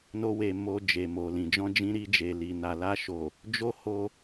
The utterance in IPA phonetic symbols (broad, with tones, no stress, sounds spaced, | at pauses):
n o˦ w e˧ m o˧ d͡ʒ e˨ m o˨ l ĩ˨ d͡ʒ ɔ̃˧ d͡ʒ ĩ˧ ɾ i˧ d͡ʒ e˨ l i˨ n a˨ l a˧ ʃ o˨ | d͡ʒ o˦ h o˧